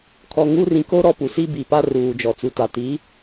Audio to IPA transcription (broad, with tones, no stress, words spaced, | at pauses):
kʰɔ˨ŋu˦rĩ˨ ko˦ ɾɔ˦pu˨ si˦bi˨pa˦ ruː˨d͡ʒɔ˨t͡su˨ta˨ ti˨˦